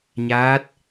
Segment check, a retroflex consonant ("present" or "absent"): absent